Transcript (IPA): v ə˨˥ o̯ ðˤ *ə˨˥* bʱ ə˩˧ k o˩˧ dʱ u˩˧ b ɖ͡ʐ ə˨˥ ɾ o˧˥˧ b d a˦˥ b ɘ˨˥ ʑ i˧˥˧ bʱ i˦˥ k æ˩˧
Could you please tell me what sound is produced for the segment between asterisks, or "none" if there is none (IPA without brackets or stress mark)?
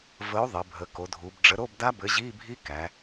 ə˩˧